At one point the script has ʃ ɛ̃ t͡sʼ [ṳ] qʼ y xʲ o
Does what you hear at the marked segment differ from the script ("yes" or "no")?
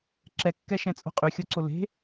yes